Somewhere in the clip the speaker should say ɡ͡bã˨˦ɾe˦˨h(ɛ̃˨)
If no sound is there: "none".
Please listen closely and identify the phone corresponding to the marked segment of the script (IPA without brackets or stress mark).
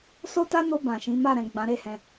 ɛ̃˧